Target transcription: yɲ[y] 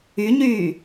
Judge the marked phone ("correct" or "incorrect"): incorrect